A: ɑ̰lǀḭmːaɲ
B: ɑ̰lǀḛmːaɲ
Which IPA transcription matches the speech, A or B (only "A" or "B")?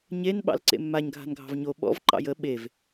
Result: B